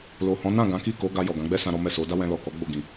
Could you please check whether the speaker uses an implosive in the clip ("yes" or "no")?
no